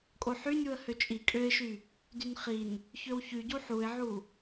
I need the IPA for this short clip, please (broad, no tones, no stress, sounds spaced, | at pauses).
kʼ o ħ y nʲ u ə̯ h ø t͡ʃʼ i kʼ ø ɪ̯ ʃ y | d y n χ i n | ç ø w ç y ɟ u ħ u ɪ̯ ʕ u